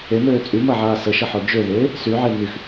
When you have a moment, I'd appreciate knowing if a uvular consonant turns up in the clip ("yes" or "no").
no